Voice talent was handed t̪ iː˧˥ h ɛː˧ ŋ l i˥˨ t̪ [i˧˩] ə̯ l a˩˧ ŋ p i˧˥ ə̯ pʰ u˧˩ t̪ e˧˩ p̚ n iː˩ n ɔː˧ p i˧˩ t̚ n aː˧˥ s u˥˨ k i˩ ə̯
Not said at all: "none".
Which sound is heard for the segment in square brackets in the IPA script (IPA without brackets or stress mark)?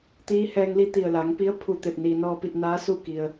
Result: i˧˩